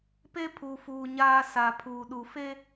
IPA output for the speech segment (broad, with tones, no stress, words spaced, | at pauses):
pe˦pʰu˨fuː˨ ɲaː˦ sa˨ pʰuː˨ɗu˨fe˦